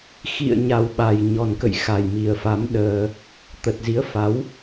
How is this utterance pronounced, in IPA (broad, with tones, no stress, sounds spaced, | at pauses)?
x ḭ˧˨ ə̯ ɲ a˨˩ w ɓ a˨˩ j ɲ ɔ˨˩ n k ə̰˧˨ j x a˨˩ j m i˨˩ ə̯ f a˨˦ m ɗ əː˧ | t̪ ə˨˩ t̚ z i˨˦ ə̯ f a˨˦ w